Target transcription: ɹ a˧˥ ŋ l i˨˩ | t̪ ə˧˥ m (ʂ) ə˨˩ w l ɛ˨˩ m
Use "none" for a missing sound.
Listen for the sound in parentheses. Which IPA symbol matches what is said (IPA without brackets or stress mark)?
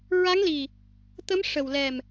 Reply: ʂ